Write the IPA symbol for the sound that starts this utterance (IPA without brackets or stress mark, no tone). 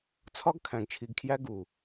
t͡sʰ